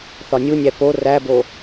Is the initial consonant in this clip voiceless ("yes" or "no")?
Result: yes